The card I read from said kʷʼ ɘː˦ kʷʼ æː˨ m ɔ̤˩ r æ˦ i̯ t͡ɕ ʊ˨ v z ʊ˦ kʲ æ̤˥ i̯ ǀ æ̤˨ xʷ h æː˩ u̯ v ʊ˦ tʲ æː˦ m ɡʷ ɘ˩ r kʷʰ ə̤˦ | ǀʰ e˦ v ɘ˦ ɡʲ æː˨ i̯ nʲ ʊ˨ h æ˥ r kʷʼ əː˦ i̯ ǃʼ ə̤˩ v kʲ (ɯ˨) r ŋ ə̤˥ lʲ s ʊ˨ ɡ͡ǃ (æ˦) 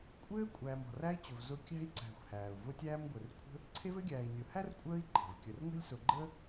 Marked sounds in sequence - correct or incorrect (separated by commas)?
incorrect, incorrect